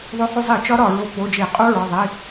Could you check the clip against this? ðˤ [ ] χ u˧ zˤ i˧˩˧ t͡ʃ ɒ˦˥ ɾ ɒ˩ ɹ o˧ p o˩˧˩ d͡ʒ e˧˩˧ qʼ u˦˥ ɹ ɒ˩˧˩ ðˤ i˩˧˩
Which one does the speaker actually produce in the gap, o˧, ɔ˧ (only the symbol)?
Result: o˧